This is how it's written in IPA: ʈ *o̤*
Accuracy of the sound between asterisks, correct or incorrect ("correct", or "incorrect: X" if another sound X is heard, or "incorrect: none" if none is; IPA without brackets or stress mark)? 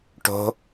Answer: correct